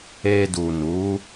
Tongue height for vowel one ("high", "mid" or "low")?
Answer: mid